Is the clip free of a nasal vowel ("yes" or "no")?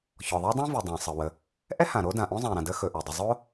no